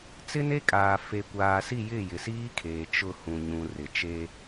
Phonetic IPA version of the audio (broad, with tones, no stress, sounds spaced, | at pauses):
t͡s ɪ˦ n e˦ kʼ aː˨ f e˨ kʷ aː˨ s i˦˨ j ɪ˦˨ j ɪ˨ s iː˦ kʰ eː˨ t͡ʃ ʊ˦˨ h ũ˨ ɲ ũ˨ r ɪ˨ t͡ʃ e˦